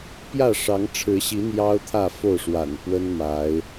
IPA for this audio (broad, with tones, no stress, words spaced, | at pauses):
pjä˥˨ʂɑ˨˦ŋʈ͡ʂʰɻ̩˨˦ɕi˨˦ n̪jɑ˦ʊ̯t̪ʰä˥˨ fo˥˨ʊ̯ʂwa̰˨˩npwə˦n ma˨˦ɪ̯